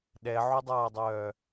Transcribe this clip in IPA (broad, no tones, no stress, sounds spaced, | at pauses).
ɗ ɛ ʕ u dˤ aː dˤ œː